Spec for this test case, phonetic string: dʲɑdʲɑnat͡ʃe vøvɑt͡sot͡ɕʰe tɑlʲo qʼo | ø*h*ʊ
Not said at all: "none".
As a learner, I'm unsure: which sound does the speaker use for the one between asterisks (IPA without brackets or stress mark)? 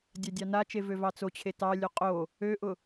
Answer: ʔ